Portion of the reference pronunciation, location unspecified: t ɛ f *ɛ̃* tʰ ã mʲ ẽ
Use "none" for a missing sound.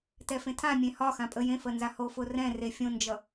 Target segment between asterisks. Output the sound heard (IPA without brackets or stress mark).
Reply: ẽ